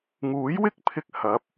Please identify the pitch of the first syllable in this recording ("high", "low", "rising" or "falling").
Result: rising